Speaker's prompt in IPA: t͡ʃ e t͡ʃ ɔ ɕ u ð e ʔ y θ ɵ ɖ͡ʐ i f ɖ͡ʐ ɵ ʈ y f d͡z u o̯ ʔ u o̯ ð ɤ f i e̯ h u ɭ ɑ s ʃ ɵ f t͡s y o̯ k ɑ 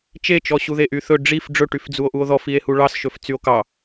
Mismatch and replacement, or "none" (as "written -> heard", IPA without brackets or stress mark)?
ɤ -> ɔ